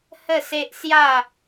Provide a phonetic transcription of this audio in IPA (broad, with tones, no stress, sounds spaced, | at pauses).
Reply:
h ə˥˧ s e˦ ʔ s j a˥˧